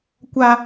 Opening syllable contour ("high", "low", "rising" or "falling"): high